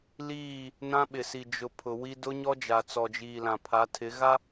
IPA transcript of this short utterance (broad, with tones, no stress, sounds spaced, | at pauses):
l iː˦˨ | n ã˦ ɓ ɪ˨ s i˨ d͡ʒ ʊ˨ pʰ ʊ˨ w i˦ d ʊ˦ ɲ ɔ˦ d͡ʒ a˨ t͡s ɔ˨ d͡ʒ iː˨ l ã˨ pʰ a˨˦ tʰ ɪ˨˦ ɣ a˦